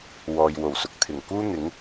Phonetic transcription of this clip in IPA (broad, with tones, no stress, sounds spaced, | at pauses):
w ɔː˨ j w o˨˩ w s ʊ˨ k̚ t̪ʰ ɪ˨˩ ŋ k uː˥ n̪ ɪ˨˥ ŋ